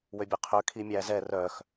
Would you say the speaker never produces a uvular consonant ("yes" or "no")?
no